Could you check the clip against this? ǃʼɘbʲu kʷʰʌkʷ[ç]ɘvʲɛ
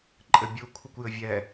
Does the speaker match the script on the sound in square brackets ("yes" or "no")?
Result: no